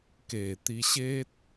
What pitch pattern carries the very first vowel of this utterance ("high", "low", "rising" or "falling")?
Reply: low